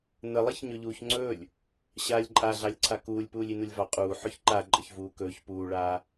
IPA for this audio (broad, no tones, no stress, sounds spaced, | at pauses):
n ə lˠ i ç ɲ ɵ ʎ uː ç ŋ͡ǀ ɵː lʲ | ɕ aː lʲ ǃʼ a ɮ ɑ lʲ ǀʰ a k uː lʲ p uː lʲ i n u lʲ v ɑ qʼ uː ħ ɵ ç ǃ a ǃʼ ə ç v uː k ɵː ç p uː ɭ aː